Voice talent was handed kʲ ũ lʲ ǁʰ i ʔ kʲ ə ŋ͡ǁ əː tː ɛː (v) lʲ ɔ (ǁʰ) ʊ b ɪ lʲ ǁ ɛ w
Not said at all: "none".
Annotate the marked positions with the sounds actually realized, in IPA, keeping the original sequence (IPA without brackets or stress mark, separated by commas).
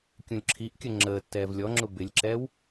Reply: v, ŋ͡ǁ